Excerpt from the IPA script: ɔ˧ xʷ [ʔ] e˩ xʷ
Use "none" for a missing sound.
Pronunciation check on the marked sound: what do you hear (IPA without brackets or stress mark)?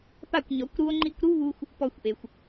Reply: ʔ